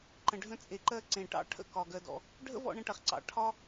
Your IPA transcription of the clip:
ǃ ə̃˨ ɖʱ ə̃˧ t͡sʼ e˨ ǃ ɜ˧ ǀ ẽ˨ ʈ ɑ̰˦ ʈʰ ə̰˦˨ k ɒ˨ ɡ ɜ˧ d ɔ̰˧ | ɖʱ ə̰˦ v ɔ̰˧ ɳ ə̃˧ ʈ ɐ˨ χ ǀ ɑ̰˨ ʈʰ ɒ˦

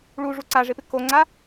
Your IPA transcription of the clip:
ɭ u ʐ u ǀ a ʐ ɪ p ɪ k o ŋ͡ǀ a

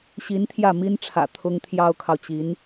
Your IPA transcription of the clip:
ɕ i˧˥ n t̪ʰ j ä˥˩ m i˥ n ʈ͡ʂʰ ä̰˨˩ t̪ʰ ʊ˥ ŋ t̪ʰ j ɑ˥ ʊ̯ kʰ ɑ˨ ʊ̯ t͡ɕ i˧˥ n

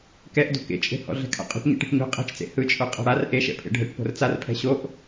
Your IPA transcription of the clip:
k ɛ ʔ d o̤ k ḛ t͡ʃʼ e̤ h ɔ̰ ɮ ɛ̤ kʰ a̰ qʼ o̤ ʈ ɲ ḛ ʈ e̤ ʈ ɲ o̤ qʼ ɛ̤ t͡ʃ t͡s ḛ h ɯ t͡ʃʼ o qʼ a̤ ɽ a r ʔ e ʃ ɛ̰ pʰ ḛ ɖʱ ɘ ʈ p o̤ r t͡s a r pʰ ɛ̤ ɕ o ʔ

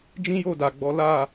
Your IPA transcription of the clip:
d͡ʒ ĩ˦ j o˦˨ d a˨ ɡ͡b ɔ˨˦ l a˦˨

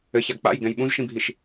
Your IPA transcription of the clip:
ɘ ç a ɡ k͡p a̰ j ɡ ɛ̃ j ɓ ũ z ʃ ĩ bʱ i ʃ

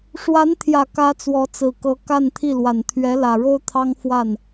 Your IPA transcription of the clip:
ʂ w a˧˥ n t̪ʰ j ä˨˩ k ä˧˥ t͡s w ɔ˧˥ t͡s ɹ̩˨˩ k ɤ˧˥ k a˥˧ n t̪ʰ i˥˩ l w a˨˩ n t̪ʰ ɥ ɛ˧˥ l ä˨˩ ɻ o˥ ʊ̯ t̪ʰ ɑ˥ ŋ f w a˥˩ n

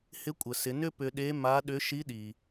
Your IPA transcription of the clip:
h ɪ˧˥ kʷʼ ə˩ s ɪ˩˧ n ʏ˥ p ʏ˧ ɗ e˧˥ m a˧˥ ɗ ʏ˧˥ ʃ i˧˥ ɗ i˩

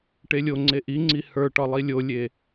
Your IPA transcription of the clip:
ʈ e lʲ o ŋ͡ǀ e ʔ i ŋ͡ǀ i h ə˞ ʈ ɒ lˠ i lʲ o lʲ e

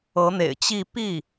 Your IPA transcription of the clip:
ɤ˧˥ n̪ ḛ˨˩ ɪ̯ t͡ɕ i˥˧ p i˥˩

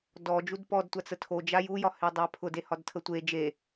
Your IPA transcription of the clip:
d ɔ d͡ʒ u d p ɔ d tʷ a t͡s ə tʰ o d͡ʒ a j u j ɒ h e dˤ a pʰ ʊ d e h ɒ d tʰ ə tʷ e d͡ʒ e

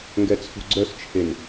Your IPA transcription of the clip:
ŋ ɡ ɛ t͡sʰ ṳ ɡ͡ǀ œ s t͡ʃʰ e n

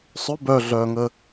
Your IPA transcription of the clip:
sˤ ʏ b œ ɮ œː ŋ ə

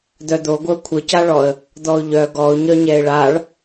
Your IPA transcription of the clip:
d̪ œ d̪ o ɡʷ ə ʊ̯ kʷʰ ə c a ɭ ɔ ə̯ | d̪ ɔ ʊ̯ ʎ œ ɡ ɔ ʊ̯ ɲ œ ɲ ɛ ɪ̯ ɭ a ɭ

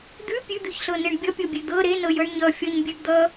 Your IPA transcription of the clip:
d̪ ʉ pʲ ʉ d̪ ʉ ç ɬ ɤ n e ɳ bʲ ʌ pʲ ɤ bʲ e d̪ ɤ ɾ e n ɤ j ɤ ɳ ɲ ʌ fʲ ʌ ɲ bʲ ʉ ɡ d̪ ʌ

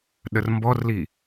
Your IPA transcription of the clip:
ɗ ə r m b ɔ r l i

